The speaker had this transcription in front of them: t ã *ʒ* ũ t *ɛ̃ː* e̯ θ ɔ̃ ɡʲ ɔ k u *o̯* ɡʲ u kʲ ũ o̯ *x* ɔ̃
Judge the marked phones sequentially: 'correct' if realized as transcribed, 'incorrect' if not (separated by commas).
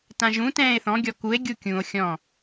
correct, correct, incorrect, incorrect